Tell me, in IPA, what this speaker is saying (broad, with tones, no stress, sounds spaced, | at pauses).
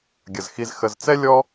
ɡʲ ə˩ z x i˨ z x ə˨ z t͡s ɛ˥ lʲ ɔ˥